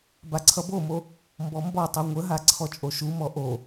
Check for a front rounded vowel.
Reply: absent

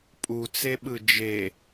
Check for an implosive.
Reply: present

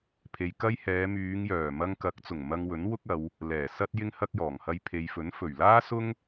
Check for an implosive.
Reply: absent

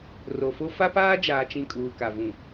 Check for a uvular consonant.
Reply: absent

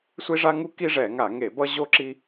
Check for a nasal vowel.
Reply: absent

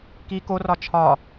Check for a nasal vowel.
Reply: absent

